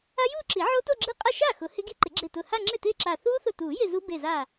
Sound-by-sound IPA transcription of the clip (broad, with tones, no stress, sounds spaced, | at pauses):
a˦˥ j uː˥˧ ǁ i˨˩˦ ʕ o˦˥ t o˥˧ ɡ͡ǁ i˦˥ qʼ a˥˩ ʃ a˥˩ x ʊ˨˩˦ h ɪ˦˥ ɡ i˦˥ ǃ ɪ˨˩˦ ɡ͡ǁ ɪː˧˩ t ʊː˧˩ h a˥˧ ŋ͡ǁ ɪː˥˩ t ɪː˥˧ ǁ aː˧˩ θ uː˦˥ θ ʊ˧˩ t uː˨˩˦ j ɪ˥˧ z u˦˥ b e˧˩ z aː˧˩